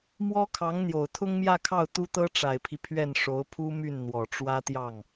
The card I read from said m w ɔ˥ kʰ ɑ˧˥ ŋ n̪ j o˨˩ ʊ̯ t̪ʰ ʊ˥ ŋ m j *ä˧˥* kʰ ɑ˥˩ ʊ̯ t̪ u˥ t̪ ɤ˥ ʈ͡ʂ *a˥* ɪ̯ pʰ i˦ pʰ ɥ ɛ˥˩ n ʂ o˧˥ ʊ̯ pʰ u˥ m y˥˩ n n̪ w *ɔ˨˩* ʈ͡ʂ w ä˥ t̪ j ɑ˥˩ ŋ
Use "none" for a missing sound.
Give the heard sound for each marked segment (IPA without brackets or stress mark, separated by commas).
ä˥˧, a˨˩, ɔ˨˩